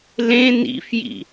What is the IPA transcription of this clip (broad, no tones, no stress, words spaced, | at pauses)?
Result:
lẽ nḭfjḭ